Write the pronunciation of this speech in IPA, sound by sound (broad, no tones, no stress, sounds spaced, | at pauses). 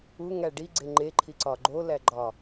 u ŋ æ ɖ i ɡ͡ǀ e ŋ͡ǃ e ǃʰ i ǀ ɒ ɡ͡ǃ o l æ ɡ͡ǃ ɒ